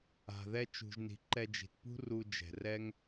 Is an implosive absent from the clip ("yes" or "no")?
yes